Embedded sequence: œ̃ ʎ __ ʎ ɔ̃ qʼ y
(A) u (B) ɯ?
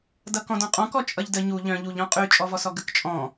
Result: A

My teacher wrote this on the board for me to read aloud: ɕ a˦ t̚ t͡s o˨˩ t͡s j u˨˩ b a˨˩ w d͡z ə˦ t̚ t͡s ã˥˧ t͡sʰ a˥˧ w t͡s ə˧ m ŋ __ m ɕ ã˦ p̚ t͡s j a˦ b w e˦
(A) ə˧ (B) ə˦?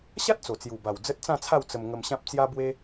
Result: A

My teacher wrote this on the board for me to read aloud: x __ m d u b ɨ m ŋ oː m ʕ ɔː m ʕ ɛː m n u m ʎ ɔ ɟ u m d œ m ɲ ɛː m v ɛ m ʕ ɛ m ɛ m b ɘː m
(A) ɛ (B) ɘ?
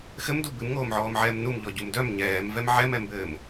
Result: B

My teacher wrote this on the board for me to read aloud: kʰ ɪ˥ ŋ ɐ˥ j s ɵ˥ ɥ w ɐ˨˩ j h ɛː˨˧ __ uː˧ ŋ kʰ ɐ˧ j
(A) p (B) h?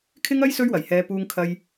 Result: A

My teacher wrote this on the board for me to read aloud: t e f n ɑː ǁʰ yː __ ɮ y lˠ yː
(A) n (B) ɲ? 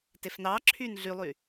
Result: A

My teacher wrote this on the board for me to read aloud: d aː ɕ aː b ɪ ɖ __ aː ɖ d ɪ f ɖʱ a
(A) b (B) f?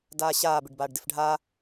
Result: A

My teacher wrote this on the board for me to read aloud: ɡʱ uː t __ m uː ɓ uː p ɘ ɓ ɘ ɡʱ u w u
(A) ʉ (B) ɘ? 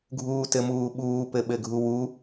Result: B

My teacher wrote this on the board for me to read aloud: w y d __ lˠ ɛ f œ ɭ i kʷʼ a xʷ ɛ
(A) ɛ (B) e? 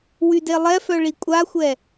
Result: B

